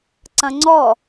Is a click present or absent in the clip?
present